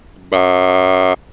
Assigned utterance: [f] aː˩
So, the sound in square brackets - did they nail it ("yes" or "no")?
no